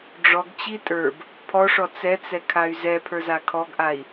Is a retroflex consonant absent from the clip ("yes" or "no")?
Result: no